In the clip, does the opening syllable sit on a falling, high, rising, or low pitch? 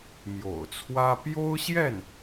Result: low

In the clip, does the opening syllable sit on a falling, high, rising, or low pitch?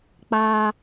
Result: high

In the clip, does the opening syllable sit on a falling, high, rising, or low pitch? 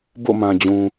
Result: falling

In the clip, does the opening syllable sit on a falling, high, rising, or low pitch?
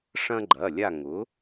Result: high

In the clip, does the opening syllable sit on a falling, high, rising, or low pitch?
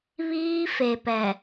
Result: high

